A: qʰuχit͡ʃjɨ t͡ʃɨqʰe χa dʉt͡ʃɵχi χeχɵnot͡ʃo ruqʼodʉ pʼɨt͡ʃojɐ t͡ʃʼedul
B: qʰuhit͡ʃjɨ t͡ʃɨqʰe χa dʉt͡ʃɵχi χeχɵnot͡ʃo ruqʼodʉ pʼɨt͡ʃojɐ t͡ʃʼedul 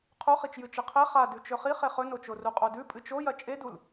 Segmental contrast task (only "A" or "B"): A